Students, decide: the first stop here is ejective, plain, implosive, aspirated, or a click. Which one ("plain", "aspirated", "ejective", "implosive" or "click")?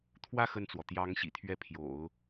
aspirated